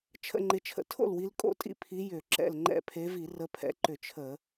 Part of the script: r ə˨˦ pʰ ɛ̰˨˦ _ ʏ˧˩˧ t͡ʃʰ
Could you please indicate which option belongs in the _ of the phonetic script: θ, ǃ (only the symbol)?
ǃ